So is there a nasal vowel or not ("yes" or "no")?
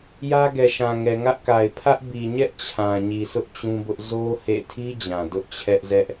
yes